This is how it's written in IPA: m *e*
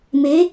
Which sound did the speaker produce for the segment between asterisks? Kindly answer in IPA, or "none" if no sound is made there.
e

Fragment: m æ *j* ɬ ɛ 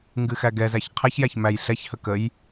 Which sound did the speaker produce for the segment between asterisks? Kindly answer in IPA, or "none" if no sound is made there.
j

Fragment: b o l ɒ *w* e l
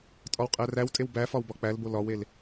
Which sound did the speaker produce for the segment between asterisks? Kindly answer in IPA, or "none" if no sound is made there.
w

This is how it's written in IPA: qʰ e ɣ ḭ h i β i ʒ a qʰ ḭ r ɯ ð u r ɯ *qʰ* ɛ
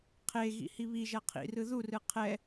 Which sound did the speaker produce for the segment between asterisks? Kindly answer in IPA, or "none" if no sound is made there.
qʰ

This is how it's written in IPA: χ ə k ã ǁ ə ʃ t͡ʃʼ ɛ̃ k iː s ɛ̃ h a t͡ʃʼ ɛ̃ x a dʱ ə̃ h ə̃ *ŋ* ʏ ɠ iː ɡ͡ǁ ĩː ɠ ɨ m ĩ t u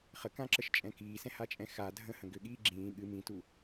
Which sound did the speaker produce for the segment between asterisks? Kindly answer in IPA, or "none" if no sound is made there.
ɡ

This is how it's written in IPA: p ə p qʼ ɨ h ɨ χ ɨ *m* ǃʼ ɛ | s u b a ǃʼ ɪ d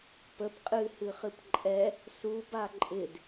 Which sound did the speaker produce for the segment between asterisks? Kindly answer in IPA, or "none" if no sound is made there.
p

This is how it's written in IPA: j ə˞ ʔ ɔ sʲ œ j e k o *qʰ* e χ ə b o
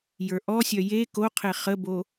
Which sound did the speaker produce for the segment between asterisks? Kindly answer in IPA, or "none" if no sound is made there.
qʰ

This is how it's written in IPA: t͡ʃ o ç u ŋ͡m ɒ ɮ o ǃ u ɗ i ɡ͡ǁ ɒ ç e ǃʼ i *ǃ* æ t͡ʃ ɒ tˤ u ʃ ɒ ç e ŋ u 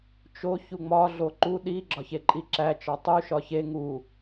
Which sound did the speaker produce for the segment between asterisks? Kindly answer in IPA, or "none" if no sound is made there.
ǁ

